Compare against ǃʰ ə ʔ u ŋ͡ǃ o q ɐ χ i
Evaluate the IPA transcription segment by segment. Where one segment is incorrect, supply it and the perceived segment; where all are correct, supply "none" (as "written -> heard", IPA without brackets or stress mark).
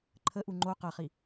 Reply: none